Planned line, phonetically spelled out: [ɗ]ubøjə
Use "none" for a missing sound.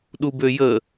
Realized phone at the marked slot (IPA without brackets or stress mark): ɗ